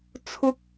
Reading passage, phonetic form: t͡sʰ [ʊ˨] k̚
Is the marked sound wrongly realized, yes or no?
yes